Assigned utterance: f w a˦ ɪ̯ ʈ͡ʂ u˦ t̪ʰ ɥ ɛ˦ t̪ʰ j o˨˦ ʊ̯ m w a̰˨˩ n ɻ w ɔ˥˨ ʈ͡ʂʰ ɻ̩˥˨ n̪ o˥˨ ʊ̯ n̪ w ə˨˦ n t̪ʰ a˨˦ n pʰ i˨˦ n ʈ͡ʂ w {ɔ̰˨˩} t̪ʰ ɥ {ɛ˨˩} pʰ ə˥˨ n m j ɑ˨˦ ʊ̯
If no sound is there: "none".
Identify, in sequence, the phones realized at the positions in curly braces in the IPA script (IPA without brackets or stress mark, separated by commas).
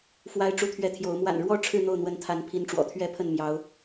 ɔ̰˨˩, ɛ˦